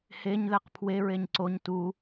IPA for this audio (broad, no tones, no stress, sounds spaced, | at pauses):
h e ɲ ð æ q pʰ w e ɹ e ɲ ǀ o ɲ t u